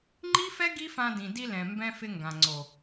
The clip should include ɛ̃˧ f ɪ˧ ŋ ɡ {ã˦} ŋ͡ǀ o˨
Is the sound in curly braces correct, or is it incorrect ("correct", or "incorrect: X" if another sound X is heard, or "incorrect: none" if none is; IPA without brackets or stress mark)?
incorrect: ã˨